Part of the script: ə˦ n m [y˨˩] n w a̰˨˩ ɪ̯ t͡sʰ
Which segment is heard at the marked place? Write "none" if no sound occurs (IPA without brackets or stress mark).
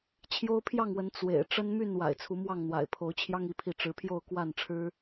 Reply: y˥˨